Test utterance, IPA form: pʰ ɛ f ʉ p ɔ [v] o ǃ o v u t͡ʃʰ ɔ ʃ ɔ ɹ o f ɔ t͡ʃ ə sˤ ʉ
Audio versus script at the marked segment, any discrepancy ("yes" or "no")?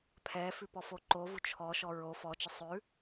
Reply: yes